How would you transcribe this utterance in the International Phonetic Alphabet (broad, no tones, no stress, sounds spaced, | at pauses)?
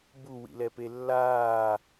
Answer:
b u w ḭ l ɛ p e lː aː